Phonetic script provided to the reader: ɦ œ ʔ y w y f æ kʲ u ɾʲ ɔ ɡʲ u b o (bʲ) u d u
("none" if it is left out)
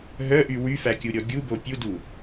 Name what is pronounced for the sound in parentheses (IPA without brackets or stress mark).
pʲ